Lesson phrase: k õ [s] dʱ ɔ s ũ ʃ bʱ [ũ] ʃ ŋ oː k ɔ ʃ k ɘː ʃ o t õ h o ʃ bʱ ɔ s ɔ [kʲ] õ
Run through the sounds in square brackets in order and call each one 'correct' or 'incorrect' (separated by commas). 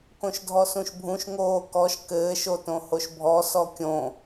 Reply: incorrect, correct, correct